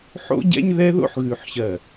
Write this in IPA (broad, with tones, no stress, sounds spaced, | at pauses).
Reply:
ħ o̰˦ ɟ ɛ̰˦ ɲ ð ɛ˦ ð o̰˦ ħ ɣ ʉ˨ ħ ɕ ɜ˨